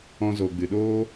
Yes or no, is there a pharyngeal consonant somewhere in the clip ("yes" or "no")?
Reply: no